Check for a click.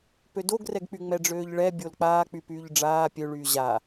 absent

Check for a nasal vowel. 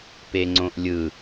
present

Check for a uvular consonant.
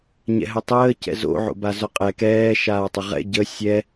present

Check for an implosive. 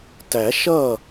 absent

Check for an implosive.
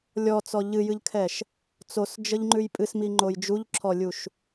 absent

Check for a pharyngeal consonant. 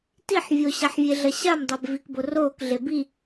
present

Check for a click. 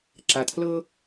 present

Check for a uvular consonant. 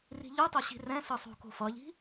absent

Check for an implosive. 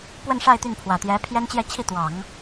absent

